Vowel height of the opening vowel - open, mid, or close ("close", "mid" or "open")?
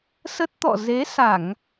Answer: mid